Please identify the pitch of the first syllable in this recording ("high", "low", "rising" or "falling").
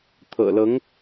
low